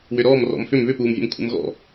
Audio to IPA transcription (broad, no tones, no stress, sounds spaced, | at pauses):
w ʏ ɾ ɔː m r ɔ̰ m f ʏ m β ʏ p uː m vʲ ə̰ m kʷʰ ə̰ m ɣ ɔ̰